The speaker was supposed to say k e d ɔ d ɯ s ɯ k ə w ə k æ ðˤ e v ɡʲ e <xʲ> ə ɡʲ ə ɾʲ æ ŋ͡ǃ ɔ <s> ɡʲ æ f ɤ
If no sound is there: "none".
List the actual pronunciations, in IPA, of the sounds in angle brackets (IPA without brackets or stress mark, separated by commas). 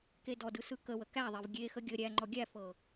x, none